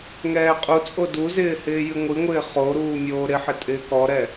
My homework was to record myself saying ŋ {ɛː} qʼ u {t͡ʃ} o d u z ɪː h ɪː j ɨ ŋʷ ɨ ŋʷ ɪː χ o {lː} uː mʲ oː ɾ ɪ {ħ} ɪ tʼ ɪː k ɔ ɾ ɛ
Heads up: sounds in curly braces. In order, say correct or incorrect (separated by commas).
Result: correct, incorrect, incorrect, correct